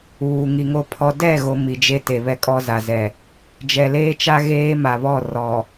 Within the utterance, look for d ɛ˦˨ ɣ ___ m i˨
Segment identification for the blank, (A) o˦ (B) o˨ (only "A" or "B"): B